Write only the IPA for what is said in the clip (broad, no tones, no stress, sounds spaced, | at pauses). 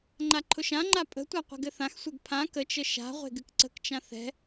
ŋ͡ǃ a ǃʰ ʊ ʃ ã ŋ͡ǃ a pʼ ə̤ tʷ a qʷ ɛ̤ ɡ ɘ θ ã x sʷ ɛ ɡ pʰ ã k ə t͡ʃ ə ʃ a̤ ʁʷ e̤ ɡ ɨ k ǀ ə̤ k t͡ʃ ã θ ɛ̤